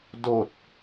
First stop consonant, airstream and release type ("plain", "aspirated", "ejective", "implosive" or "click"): plain